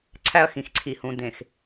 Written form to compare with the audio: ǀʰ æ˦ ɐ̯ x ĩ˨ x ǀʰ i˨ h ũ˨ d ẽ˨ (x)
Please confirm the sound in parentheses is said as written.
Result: yes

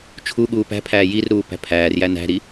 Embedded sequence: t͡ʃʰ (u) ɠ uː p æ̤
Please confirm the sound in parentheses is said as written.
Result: yes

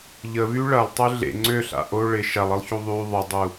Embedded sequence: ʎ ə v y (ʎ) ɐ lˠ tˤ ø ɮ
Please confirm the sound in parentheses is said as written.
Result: no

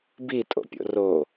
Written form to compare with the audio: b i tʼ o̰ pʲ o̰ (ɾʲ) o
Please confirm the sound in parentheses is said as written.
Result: no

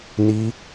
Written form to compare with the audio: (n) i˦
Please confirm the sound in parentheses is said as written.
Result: yes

